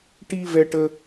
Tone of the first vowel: high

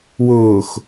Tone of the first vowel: low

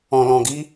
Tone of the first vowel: low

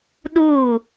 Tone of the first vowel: falling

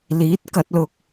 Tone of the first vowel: rising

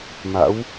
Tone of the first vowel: rising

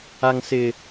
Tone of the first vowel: high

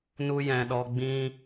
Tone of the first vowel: high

